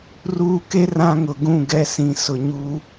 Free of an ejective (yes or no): yes